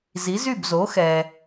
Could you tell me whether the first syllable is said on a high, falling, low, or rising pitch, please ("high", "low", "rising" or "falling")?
rising